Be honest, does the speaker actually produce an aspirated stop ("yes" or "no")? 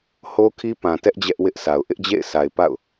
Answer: yes